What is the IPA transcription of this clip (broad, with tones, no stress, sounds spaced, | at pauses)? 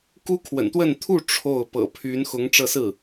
k u˥ kʰ w ə̰˨˩ n t̪ w ə˥˧ n t̪ʰ u˥˧ ʈ͡ʂʰ o˥˩ ʊ̯ p ɤ̰˨˩ pʰ y˧˥ n x ʊ˧˥ ŋ ʈ͡ʂ ɤ˥˧ s ɹ̩˥˩